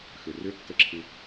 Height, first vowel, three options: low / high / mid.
high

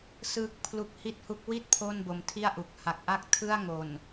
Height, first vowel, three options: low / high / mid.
high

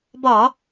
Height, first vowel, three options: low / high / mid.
low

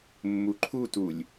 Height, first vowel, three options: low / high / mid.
high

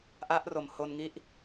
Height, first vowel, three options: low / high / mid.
low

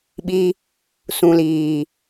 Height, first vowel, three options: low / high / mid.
high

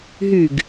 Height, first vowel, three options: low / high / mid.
high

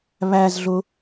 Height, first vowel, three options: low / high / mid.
low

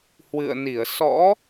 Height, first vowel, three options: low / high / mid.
high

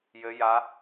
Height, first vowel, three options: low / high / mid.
mid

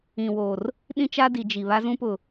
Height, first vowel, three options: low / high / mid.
high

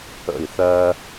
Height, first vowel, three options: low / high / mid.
mid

